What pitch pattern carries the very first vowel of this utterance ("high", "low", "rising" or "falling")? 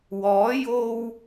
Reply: rising